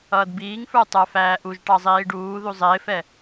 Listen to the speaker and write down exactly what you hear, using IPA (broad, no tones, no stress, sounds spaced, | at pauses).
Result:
ʌː d b iː ŋ f ə˞ tˤ ə˞ f æː ʔ u ʒ ʈ ɑ zˤ iː ɖ uː ð u zˤ ɪː f ɛ